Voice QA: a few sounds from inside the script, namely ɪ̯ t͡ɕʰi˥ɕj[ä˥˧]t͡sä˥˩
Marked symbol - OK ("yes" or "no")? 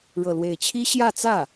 yes